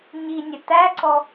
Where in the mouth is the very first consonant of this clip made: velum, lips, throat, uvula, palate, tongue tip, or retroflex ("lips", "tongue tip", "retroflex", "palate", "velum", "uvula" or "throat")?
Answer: palate